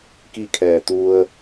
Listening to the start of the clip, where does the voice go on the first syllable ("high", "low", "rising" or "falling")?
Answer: falling